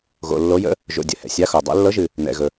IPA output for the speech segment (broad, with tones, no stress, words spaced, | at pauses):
ɣo̰˨lːo˧˥jə̰˧˥ | ʒo̰˨dʲə̰˨ hɛ̰˨sʲa˧˥xo˨dˤɛ̰˧˥ lːɤ˧˥ʒɨ˨ | nɛ̰˨ɣɵ˨